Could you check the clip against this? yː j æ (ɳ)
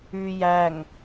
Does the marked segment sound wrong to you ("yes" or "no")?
yes